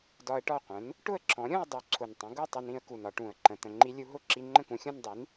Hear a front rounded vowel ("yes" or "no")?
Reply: no